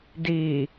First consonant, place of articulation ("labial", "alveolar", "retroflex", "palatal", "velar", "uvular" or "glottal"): alveolar